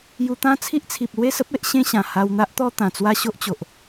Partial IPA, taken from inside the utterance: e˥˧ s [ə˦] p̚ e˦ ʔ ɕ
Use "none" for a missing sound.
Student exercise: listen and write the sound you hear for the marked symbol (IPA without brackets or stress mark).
ə˦